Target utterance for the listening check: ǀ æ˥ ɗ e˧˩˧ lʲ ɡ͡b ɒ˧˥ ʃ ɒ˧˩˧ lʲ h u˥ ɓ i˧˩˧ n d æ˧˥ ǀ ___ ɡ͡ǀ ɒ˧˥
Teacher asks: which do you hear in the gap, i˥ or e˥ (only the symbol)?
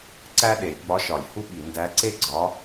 e˥